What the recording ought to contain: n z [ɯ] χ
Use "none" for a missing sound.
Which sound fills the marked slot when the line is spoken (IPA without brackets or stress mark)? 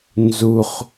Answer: u